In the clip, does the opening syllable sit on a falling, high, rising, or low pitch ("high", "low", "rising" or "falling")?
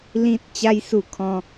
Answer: high